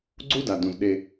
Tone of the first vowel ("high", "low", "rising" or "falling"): high